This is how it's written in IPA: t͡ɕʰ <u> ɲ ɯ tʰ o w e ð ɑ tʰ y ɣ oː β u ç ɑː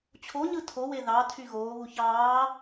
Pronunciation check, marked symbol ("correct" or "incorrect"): incorrect